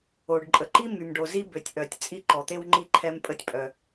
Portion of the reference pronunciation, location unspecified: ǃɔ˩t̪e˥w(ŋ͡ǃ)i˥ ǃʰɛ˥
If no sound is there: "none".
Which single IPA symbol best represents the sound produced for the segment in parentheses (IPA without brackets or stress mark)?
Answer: ŋ͡ǃ